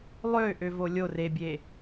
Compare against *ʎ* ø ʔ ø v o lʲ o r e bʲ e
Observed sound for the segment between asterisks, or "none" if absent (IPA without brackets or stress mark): lˠ